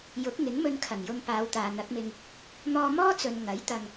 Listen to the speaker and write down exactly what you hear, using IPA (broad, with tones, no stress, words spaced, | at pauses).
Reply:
jʊ˨˥k̚ ŋɪ˨˥ŋmɵ˧nkʰɐ˨˩ŋjʊ˧ŋ paː˨˧wt̪aː˨n̪ɐ˨˥k̚mɪ˧ŋ | n̪ɔː˧mɔː˥t͡sɵ˨n ŋɐ˨˥j t̪ɐ˧ŋ